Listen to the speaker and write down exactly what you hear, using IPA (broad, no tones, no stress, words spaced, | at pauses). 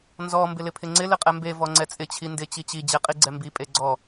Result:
nzɔ mbɪlɪpʰɪŋ͡ǀɪ lɪqʼɛmbe vɔŋ͡ǀɛt͡sʼɪ t͡ɕʰindɪ t͡ɕit͡ɕi d͡ʑeqʼiɡ͡ǀɛmbi pʼeɡ͡ǀɔ